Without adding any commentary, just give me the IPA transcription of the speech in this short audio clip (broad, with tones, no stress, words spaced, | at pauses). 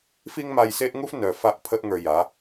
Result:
fi˦ŋma˧jse˦ʔŋu˦f nœ˨ fa˦ʔpʰə˦ʔŋə˞˧ja˨˦